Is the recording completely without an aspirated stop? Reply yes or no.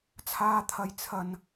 no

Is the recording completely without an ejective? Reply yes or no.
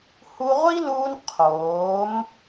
yes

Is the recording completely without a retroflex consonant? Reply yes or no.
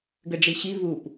no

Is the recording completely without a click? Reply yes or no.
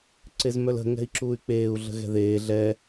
no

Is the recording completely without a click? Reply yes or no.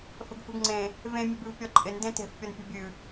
no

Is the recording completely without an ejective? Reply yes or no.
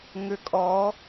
no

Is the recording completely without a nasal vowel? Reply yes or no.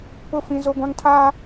no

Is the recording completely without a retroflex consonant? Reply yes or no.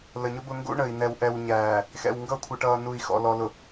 no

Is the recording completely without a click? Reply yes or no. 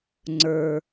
no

